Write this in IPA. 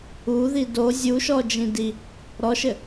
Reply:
u ð i d o zʲ u ʃ ɔ d͡ʒ ĩ d i | ɾ ɔ ʃ ɘ

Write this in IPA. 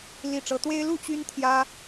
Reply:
l i˥˨ ʈ͡ʂ ɤ˦ t̪ w e˦ ɪ̯ l u˥˨ t͡ɕ y˦ n t̪ʰ j ä˦

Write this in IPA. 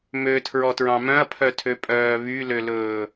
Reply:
m ø tʰ ɹ ɔ t ɹ ɑ̃ m œ̃ ɐ̯ pʰ œ tʰ ø pʼ œː β y l ø l ɵː

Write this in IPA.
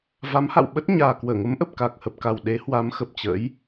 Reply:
v a˨˦ m h a̰˧˨ w ɓ ə˦˥ t̚ ɲ aː˨˩ k w əː˧˩ ŋ ə˨˦ m ʔ ə˨˩ p̚ k a˨˩ k̚ h ə˨˩ p̚ k a˨˩ w ɗ e˨˦ h w a˨˦ m x ə˨˩ p̚ t͡ɕ ə̰˧˥ j

